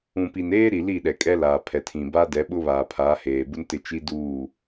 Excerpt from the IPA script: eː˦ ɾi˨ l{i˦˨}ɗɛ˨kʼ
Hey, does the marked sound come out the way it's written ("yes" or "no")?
yes